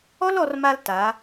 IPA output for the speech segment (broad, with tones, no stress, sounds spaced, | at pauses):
ɔ˦ l ɔ˧ r m a˧ l t a˨˦